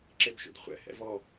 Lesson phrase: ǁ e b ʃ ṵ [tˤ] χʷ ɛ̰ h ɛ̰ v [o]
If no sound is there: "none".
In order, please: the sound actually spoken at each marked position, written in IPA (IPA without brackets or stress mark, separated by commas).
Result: d, ɔ